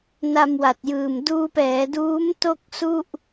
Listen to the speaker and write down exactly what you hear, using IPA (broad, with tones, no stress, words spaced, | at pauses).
na˧mwa˨˩t̚jɯː˨˩m duː˧pɛː˩˦duː˦˥m to˥˩k̚su˥˩ʔ